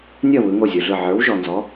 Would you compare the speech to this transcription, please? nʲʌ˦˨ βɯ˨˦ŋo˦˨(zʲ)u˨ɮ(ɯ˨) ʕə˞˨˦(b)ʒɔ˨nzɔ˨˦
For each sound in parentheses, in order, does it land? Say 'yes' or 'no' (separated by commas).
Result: yes, no, no